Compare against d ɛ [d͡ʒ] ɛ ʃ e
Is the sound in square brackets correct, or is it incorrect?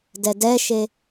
incorrect